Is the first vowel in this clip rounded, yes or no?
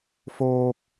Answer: yes